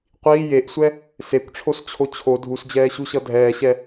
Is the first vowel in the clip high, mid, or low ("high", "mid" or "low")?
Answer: high